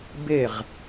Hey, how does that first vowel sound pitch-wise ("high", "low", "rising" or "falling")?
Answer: falling